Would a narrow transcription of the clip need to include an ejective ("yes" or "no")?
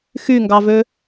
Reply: no